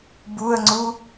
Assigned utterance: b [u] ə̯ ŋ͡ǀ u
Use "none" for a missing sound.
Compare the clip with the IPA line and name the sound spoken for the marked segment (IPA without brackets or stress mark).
u